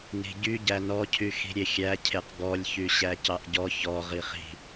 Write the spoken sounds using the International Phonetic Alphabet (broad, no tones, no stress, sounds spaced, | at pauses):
n i̤ ɟ y ɟ æ n ɔ cʰ y x i̤ ɾʲ e xʲ æ cʰ e q ɡ ɔ lʲ ç y ɕ æ c ɑ ʔ ɟ ɔ ç ɔ ʁ i χ i̤